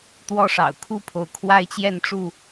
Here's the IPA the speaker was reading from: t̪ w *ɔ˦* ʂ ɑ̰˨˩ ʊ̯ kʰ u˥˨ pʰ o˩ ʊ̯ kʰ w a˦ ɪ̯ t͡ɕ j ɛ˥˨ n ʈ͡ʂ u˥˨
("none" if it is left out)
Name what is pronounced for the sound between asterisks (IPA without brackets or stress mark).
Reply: ɔ˦